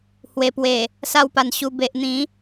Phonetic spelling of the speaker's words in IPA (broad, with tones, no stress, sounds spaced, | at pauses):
h w e˨˩ p w e˨˩ | s a˧ w p a˨˩ n ɕ u˧ b e˨ ʔ n̪ ĩ˨˦